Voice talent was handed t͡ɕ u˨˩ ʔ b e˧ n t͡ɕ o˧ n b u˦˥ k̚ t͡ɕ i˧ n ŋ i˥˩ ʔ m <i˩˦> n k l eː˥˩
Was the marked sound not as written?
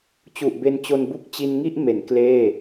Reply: yes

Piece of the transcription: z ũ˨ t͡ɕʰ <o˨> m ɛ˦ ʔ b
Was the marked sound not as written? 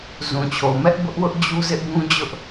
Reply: no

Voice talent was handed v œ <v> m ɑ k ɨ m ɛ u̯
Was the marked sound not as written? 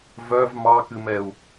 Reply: no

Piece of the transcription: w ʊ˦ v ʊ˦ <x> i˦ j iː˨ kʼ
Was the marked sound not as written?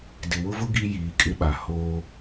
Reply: yes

